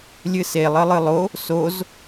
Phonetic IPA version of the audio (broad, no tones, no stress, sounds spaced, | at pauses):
lʲ ɨ s e lˠ ə lˠ ɨ lˠ o | s o z